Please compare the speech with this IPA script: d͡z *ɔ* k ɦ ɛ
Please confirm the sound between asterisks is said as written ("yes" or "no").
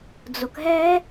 no